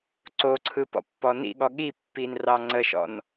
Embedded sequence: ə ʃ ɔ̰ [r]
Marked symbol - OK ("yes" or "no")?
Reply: no